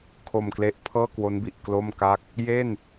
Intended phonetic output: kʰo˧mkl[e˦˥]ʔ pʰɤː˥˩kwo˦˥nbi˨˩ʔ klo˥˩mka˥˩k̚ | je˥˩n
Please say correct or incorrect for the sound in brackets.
correct